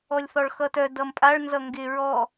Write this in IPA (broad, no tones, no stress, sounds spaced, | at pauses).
ɔ lʲ θ ɔ ɭ x ʌ t œ d ʌ m pʼ a ɭ n z ʌ ŋ ɡ ɪ ɹ ɔ